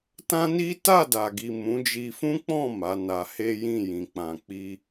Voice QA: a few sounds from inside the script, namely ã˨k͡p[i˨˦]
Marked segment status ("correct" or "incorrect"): incorrect